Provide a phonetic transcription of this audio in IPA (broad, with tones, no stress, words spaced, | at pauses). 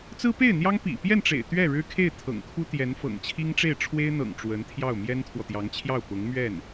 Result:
t͡sɹ̩˥pe˥˩ɪ̯n̪jɑ˥ŋpḭ˨˩ pjɛ˥˩nʈ͡ʂḛ˨˩ɪ̯ t̪ɥɛ˥˩ɻɻ̩˥kʰe˥˩ɪ̯ t̪ʰɤ̰˨˩ŋkʰu˥ t̪jɛ˧˥nfɤ̰˨˩ŋt͡ɕʰi˥ŋʈ͡ʂe˥˩ɪ̯ ʈ͡ʂʰwe˥ɪ̯n̪ɤ̰˨˩ŋ ʈ͡ʂwə˧˥nt̪ʰjɑ˥˩ʊ̯ mjɛ˥nt̪ʰwɔ˨t̪jɑ˧˥ŋt͡ɕʰjɑ˥˩ʊ̯ pʊ˧˥ŋmɥɛ˥˩n